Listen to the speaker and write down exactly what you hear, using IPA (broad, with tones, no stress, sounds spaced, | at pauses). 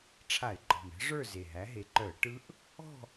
ʈ͡ʂʰ a˧˩˧ ɪ̯ ɡ͡ǃ ɔ̤˨˩ m ɛ̤˦˥ ʐ ə˞˥˨ z e˨˩ ɦ æ˨˦ ɦ e˨˦ ǃ œ˧˩˧ ə̯ ʈ ɯ˦˥ ʔ | ɔ̤˥˨